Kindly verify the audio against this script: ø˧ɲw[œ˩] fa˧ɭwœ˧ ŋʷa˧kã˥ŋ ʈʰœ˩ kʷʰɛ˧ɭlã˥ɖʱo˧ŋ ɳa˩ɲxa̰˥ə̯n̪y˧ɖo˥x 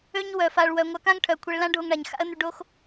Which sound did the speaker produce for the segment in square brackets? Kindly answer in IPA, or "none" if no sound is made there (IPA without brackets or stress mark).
œ˩